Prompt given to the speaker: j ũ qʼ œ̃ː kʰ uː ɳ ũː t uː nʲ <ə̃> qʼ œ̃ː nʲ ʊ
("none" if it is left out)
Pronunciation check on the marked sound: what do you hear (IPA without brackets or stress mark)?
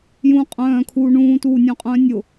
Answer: œ̃